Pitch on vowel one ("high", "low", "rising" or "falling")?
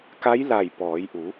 rising